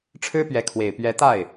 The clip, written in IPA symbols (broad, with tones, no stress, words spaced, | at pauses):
ʈ͡ʂʰɻ̩˥pɥɛ˧˥ kʰwe˨˩ɪ̯pɥɛ˧˥t̪a˥˩ɪ̯